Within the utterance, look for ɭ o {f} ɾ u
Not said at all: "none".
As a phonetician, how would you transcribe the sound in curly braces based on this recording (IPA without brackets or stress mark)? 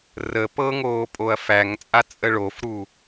f